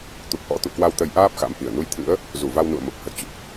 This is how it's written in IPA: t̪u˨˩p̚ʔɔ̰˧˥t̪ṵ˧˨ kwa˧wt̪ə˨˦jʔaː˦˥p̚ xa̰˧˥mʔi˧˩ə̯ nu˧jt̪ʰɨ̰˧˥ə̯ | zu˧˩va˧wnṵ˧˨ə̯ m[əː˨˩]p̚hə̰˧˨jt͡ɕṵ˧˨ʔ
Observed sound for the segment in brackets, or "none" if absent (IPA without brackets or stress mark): ə˨˩